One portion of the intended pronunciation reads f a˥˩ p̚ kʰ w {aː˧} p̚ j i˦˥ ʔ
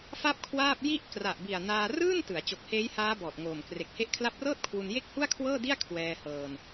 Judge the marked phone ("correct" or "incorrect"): incorrect